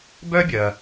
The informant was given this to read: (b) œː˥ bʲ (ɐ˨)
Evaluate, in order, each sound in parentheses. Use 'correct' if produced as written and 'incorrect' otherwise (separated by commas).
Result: correct, correct